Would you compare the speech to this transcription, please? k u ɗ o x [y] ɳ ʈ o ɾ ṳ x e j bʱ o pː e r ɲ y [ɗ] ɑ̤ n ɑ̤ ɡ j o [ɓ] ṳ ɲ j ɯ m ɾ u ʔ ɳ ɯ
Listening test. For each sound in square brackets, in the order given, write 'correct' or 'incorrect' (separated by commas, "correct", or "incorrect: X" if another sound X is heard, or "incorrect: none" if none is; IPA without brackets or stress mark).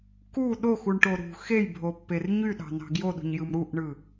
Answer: incorrect: u, correct, incorrect: ɗ